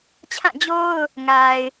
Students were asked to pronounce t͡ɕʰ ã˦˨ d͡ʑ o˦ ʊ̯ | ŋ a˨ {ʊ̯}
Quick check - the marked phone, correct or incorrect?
incorrect